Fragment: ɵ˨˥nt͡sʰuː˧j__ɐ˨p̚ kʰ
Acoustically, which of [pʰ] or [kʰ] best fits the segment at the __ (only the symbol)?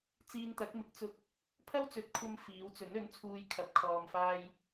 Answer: kʰ